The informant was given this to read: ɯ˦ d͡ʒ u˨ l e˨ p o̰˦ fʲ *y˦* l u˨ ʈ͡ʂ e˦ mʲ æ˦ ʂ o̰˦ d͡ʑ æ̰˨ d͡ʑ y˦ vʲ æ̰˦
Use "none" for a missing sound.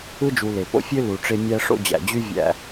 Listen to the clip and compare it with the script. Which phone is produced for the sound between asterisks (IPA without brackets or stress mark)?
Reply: ø˦